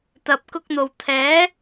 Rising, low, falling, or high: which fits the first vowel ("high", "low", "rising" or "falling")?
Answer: low